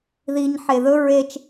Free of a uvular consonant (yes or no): yes